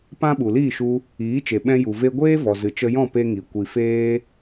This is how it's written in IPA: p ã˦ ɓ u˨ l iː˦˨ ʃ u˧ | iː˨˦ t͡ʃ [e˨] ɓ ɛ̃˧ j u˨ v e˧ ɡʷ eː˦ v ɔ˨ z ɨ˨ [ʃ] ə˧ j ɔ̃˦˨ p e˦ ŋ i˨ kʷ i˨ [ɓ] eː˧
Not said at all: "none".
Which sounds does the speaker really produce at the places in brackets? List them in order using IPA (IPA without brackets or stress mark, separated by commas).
e˨, t͡ʃ, f